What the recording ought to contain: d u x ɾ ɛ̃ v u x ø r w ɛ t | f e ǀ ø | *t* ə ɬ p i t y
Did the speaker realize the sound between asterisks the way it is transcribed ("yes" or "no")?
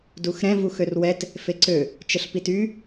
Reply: no